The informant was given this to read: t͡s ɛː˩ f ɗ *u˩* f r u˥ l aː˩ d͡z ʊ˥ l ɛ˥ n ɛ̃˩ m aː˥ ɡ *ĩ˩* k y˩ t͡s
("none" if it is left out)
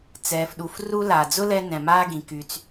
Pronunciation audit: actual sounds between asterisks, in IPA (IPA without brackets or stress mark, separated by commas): u˩, ĩ˩